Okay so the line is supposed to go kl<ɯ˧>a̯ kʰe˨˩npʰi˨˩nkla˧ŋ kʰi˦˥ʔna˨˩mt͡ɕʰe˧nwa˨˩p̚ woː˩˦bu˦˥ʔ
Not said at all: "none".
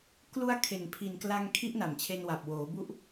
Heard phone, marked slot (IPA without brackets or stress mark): u˧